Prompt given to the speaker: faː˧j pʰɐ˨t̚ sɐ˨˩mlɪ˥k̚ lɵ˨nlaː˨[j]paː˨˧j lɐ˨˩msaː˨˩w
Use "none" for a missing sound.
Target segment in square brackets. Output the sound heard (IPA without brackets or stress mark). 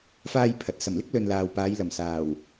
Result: w